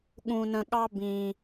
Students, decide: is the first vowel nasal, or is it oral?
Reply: nasal